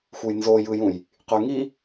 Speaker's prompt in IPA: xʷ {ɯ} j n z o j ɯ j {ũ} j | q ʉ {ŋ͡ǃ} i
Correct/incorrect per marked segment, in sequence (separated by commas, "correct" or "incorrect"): correct, correct, incorrect